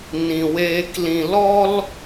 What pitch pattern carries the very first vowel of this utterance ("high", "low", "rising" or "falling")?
low